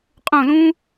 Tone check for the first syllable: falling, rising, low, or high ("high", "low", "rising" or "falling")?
falling